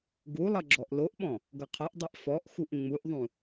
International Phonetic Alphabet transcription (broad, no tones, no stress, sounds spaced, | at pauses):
ɡ u lˠ ʌ ɡ͡ǁ ɔ ʔ l o ʔ ɓ ɔ̃ | ɡ ʌ qʰ ʌ ʔ dˤ e ʔ f ɔ ʔ x u ʔ ŋ͡m u ʔ ðˤ ũ